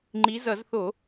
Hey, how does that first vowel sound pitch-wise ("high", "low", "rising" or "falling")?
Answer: rising